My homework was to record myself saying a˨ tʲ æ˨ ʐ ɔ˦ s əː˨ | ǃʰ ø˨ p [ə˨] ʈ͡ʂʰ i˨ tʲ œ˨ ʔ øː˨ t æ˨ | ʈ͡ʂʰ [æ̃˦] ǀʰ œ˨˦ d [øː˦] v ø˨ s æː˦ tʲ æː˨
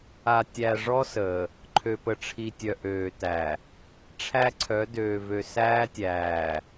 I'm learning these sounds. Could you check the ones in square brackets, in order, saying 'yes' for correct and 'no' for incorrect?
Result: yes, no, no

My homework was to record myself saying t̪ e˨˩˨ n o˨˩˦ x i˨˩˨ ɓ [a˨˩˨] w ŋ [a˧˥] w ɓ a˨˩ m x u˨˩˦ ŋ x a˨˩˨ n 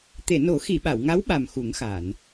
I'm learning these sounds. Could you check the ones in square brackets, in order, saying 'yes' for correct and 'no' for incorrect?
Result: yes, yes

